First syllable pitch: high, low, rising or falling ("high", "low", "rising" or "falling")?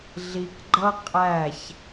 low